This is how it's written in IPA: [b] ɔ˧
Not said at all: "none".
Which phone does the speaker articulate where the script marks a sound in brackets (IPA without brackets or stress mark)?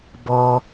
b